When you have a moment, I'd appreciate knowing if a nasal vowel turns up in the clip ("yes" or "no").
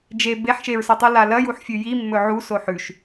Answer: no